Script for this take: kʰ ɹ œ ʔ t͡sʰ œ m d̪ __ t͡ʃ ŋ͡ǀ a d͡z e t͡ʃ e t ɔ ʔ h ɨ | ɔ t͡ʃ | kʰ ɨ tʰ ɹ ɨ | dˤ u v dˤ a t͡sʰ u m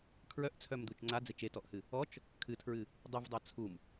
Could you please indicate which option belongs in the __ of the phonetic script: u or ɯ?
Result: u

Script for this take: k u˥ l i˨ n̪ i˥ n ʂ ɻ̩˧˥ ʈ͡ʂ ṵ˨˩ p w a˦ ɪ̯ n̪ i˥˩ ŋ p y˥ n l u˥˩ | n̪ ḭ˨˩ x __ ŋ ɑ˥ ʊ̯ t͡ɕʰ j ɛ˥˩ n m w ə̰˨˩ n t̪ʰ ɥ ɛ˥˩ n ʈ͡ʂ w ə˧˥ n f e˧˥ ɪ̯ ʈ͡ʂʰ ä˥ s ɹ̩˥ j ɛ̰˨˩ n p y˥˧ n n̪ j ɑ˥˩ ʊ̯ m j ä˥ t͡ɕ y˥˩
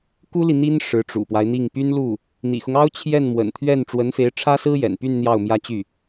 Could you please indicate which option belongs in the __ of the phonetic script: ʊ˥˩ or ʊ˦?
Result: ʊ˦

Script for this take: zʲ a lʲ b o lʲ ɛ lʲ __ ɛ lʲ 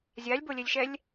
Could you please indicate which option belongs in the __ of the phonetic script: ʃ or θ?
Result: ʃ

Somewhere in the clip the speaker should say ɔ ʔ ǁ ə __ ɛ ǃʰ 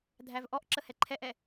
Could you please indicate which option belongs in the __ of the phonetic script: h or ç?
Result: h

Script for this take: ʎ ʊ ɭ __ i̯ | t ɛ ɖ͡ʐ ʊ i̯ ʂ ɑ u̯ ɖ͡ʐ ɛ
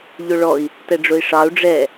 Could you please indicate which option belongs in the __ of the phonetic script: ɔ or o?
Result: ɔ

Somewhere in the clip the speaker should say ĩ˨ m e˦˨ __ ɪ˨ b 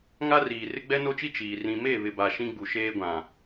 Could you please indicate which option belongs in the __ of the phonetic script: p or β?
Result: β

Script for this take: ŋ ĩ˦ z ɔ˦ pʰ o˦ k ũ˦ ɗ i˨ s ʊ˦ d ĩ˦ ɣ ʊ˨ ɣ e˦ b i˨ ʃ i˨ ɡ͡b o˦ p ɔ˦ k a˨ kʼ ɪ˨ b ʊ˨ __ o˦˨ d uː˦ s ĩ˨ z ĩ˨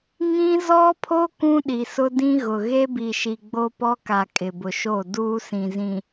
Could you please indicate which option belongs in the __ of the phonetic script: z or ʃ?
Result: ʃ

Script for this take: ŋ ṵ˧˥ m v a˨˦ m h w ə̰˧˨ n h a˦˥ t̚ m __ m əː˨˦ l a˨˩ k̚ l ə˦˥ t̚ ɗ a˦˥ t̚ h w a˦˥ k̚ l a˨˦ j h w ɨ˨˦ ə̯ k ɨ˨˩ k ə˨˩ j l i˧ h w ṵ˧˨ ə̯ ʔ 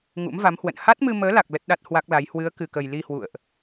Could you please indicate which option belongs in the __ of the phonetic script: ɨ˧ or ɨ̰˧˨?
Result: ɨ˧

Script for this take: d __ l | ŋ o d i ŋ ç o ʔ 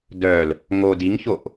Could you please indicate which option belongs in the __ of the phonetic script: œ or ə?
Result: œ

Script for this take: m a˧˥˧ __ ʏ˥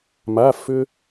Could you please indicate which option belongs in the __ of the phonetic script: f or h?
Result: f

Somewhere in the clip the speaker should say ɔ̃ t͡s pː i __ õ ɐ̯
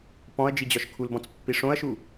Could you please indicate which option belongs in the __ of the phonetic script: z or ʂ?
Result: ʂ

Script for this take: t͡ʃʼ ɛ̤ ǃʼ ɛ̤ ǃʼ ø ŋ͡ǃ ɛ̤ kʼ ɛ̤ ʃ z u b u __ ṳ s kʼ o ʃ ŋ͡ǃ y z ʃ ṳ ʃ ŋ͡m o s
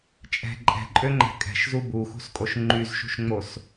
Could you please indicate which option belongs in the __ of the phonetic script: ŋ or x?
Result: x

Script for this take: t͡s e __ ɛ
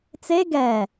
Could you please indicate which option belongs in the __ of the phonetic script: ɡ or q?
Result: ɡ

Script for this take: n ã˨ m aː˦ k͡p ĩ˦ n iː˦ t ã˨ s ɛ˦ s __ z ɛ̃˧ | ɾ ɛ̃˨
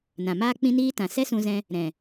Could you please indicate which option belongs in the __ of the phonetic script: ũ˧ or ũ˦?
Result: ũ˧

